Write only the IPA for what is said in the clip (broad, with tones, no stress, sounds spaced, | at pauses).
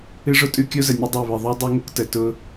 ɨ˦ ʐ ʊ˦ tʼ ʉ˦ kʲ o˦ z ə˨ nʲ ʊ˦ dˤ e˦˨ β ɨ˨ ðˤ u˦ dˤ u˦ ŋ ʊ˦ k t ə˨ t ʊ˦